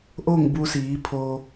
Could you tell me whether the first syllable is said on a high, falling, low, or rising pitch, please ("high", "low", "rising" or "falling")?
falling